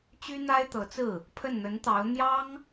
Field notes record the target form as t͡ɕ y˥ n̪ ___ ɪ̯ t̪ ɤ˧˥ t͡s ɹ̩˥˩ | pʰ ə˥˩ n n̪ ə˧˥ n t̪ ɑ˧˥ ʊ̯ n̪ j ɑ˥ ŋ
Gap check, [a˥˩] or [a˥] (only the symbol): a˥